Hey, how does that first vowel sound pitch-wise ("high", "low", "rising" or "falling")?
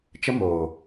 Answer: high